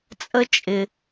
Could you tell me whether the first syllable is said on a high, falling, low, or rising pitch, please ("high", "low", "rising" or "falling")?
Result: high